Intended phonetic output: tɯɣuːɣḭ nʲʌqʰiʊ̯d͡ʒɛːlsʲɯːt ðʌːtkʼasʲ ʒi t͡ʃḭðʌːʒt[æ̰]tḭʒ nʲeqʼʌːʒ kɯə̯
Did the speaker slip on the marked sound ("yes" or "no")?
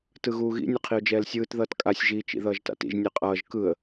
yes